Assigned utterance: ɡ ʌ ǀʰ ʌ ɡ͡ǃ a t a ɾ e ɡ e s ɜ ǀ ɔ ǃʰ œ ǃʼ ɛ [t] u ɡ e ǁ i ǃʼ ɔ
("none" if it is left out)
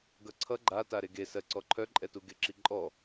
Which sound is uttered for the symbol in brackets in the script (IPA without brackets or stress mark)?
t